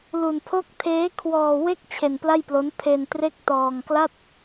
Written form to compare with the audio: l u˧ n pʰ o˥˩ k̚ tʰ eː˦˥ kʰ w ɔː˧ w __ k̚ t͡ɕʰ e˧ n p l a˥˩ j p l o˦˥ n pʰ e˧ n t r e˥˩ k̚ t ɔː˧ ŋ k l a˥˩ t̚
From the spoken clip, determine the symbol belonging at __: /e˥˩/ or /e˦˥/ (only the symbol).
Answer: e˥˩